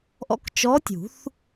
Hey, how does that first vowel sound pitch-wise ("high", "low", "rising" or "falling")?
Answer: rising